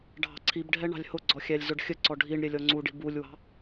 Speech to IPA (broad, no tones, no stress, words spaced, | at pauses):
ɖʱɑ̤ǀʰibɖʱɛ ɳɑ̤lʲhʊɡ͡ǀɔ xʲælʲzʊɖxʲəǀɔ ɖʱiɳ ɾʲɛlʲɔŋ͡ǀuɖi̤ bulʲwɑ̤